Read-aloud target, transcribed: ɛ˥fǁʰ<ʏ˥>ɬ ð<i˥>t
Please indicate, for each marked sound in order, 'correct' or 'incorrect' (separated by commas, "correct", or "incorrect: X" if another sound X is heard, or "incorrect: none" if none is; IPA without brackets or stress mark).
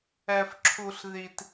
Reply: incorrect: u˥, correct